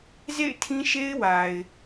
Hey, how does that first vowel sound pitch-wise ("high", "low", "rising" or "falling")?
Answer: falling